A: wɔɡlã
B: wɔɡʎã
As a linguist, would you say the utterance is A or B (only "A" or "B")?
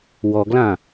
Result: A